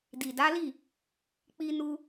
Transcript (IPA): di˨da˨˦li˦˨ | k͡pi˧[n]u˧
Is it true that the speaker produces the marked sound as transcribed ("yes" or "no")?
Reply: yes